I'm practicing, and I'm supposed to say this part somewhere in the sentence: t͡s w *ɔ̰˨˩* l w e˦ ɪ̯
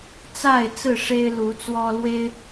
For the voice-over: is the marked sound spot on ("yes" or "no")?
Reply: no